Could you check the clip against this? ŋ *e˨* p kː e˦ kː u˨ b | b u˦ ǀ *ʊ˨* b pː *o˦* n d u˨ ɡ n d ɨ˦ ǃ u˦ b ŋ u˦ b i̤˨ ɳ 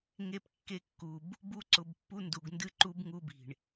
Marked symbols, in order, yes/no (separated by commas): no, yes, no